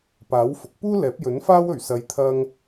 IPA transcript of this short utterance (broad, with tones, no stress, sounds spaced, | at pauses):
p aː˨˥ w f ʊ˨˥ k̚ p uː˥ l ɛː˨˥ p̚ j ɵ˨˥ n f aː˥ w ɵ˨˩ ɥ s ɐ˨˧ j t̪ʰ ɐ˧ ŋ